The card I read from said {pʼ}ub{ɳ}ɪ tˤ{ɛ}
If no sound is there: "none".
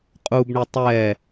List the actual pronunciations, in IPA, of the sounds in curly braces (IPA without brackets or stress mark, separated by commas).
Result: qʼ, ɳ, ɛ